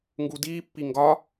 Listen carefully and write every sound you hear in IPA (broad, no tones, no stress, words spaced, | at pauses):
ŋɡudiːpːi ŋɡɒ